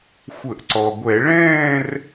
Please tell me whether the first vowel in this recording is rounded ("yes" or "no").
no